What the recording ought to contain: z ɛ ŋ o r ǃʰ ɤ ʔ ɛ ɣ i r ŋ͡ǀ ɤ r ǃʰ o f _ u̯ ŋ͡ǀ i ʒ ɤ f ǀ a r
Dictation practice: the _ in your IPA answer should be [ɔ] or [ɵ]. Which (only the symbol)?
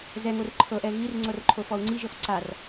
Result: ɔ